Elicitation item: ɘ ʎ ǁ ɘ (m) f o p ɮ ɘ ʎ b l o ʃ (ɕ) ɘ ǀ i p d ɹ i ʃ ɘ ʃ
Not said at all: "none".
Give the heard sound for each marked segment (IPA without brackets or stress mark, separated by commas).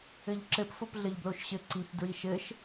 p, ɕ